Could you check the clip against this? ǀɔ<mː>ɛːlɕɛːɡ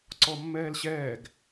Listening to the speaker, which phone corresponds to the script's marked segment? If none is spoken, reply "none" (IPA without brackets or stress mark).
mː